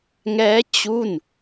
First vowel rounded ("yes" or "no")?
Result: no